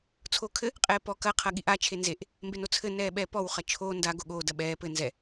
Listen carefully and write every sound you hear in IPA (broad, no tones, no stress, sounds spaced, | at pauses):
t͡sʰ oː kʰ ɘ | qʼ ɛː p ɔ k ɐ qʰ ɐ ɠ i ʔ a t͡ʃʰ e n z e ʔ | m b e n o t͡sʰ ɘ n ɛː ɓ ɛː p ɔ w χ ɐ t͡ʃʰ oː n d a ɡ o ɠ oː d ɐ ɓ ɛː p ɘ n z ɛ